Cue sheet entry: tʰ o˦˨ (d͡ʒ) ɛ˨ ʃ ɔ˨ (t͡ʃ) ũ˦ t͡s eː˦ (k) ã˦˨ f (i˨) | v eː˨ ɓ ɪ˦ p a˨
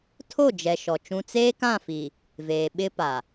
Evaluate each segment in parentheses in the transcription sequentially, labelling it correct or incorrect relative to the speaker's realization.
correct, correct, correct, correct

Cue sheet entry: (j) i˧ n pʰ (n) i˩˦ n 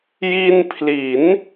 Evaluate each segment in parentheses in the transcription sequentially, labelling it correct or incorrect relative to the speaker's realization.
correct, incorrect

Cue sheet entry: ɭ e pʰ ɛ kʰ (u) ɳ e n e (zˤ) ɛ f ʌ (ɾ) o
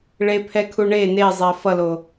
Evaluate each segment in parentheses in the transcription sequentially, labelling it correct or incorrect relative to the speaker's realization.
correct, correct, incorrect

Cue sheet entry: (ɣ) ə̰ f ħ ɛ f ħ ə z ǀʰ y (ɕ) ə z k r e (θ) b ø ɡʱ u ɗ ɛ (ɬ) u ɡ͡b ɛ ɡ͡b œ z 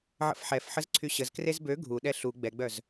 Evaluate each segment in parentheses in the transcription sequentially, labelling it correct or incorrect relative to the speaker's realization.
incorrect, correct, incorrect, correct

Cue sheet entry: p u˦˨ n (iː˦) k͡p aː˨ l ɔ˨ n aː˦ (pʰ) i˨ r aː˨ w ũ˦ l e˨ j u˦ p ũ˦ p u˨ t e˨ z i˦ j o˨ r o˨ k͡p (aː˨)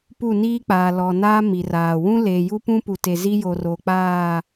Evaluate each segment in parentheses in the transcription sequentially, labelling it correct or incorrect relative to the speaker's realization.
correct, incorrect, incorrect

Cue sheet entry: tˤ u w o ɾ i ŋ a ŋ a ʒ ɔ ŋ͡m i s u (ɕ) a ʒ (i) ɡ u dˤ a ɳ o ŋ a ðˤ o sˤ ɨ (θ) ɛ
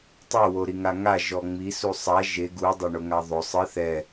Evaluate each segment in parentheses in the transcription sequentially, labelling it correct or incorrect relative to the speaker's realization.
incorrect, incorrect, correct

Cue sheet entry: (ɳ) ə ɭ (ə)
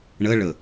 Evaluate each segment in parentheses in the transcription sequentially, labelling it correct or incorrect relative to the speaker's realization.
correct, correct

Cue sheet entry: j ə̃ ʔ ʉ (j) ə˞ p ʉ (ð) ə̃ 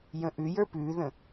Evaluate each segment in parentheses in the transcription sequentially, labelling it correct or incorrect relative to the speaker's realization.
correct, correct

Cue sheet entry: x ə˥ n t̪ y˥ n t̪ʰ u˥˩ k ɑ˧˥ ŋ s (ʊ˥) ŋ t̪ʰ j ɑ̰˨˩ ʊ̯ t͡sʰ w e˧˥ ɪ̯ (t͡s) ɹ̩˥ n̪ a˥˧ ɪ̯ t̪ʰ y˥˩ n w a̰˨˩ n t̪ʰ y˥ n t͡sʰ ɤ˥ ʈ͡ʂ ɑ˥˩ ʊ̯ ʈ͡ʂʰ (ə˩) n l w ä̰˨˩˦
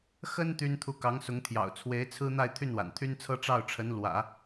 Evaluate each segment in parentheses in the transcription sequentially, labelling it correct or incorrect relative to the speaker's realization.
incorrect, incorrect, incorrect

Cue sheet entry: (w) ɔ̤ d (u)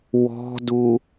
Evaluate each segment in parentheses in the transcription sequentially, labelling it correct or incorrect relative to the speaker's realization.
correct, correct

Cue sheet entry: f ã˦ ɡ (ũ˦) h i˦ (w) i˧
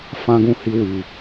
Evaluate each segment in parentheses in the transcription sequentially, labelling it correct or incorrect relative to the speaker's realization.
correct, correct

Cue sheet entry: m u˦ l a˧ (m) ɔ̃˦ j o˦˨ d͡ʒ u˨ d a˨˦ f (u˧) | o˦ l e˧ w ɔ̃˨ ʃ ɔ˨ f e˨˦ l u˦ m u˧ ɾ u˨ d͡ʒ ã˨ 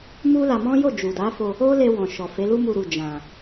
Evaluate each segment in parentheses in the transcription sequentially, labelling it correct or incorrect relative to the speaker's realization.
correct, incorrect

